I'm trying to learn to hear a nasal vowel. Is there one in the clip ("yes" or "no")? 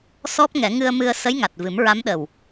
no